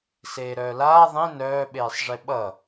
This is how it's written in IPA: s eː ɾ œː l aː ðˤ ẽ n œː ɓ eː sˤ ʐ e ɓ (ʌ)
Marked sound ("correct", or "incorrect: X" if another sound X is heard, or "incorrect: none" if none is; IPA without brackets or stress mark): correct